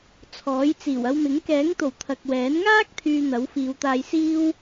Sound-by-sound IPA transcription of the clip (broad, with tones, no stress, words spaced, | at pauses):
t͡sʰɔː˨˥jt͡siː˨˩w ɐ˧wmɪ˨˥ŋ kɛː˨˥ŋt̪o˨˩w t̪ʰɐ˨k̚wɛː˨˥n ŋaː˥k̚ t̪ʰyː˧n̪ɐ˨˥wfiː˨˧wt̪aː˧j siː˥w